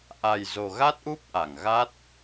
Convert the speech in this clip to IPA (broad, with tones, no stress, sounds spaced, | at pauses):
ʔ a˨˩ j z o˨˩ ɣ a˦˥ t̚ ʔ u˦˥ p̚ ʔ a˧˩ ŋ ɣ a˦˥ t̚